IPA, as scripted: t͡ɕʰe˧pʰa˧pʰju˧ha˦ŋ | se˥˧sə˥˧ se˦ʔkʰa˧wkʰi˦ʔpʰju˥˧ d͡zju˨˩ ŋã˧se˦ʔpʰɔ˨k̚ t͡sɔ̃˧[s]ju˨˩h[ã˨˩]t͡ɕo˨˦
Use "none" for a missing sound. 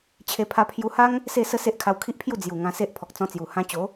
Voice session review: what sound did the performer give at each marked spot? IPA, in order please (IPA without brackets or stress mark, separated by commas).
t͡s, ã˧